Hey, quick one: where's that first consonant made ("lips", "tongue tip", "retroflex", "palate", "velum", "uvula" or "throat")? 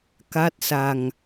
velum